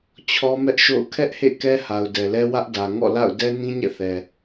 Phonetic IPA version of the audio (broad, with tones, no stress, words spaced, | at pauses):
t͡ɕʰɔ˦mɛ˦ʔʃo̰˦˨ʊ̯ kʰɛ˦ʔhḛ˦˨ kɛ˦ha˨ʊ̯dɛ˨lɛ˦ wä˦ʔdä˨ ŋɔ̰˦˨la̰˦˨ʊ̯ dɛ˦nĩ˦ɲɛ̰˦˨θɛ˨